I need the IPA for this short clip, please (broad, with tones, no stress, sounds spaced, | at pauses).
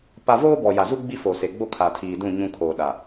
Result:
p a˦ v oː˦ b ɔ˨ j a˨ z u˦ ɡ͡b i˦ f o˨ s e˨ ɡ͡b o˦ kʰ a˨ tʰ iː˨ d ũ˦˨ ɲ ũ˦ kʰ oː˨ ɗ a˨